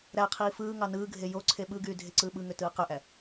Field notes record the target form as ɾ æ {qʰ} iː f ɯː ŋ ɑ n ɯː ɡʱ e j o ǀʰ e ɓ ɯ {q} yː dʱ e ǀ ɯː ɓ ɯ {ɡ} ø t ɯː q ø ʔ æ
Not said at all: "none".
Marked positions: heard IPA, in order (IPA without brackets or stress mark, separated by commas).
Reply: qʰ, ɡ, ŋ